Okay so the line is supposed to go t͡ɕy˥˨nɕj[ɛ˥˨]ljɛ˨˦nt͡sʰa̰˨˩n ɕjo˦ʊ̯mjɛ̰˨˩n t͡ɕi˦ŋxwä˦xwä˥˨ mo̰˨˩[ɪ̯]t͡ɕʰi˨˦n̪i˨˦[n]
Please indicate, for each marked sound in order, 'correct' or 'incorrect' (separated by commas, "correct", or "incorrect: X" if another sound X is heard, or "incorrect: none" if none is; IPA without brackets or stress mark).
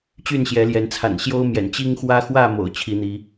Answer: incorrect: ɛ˨˦, incorrect: ʊ̯, incorrect: none